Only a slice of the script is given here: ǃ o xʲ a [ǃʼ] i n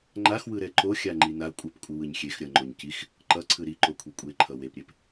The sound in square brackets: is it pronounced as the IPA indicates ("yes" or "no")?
no